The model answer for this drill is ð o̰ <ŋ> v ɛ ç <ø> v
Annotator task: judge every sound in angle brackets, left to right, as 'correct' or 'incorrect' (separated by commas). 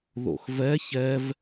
incorrect, incorrect